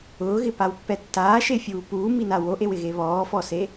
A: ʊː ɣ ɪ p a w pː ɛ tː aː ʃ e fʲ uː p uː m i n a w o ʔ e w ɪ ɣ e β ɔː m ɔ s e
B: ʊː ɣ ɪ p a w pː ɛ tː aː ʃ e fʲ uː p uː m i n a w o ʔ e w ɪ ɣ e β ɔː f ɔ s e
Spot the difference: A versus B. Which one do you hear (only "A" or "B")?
B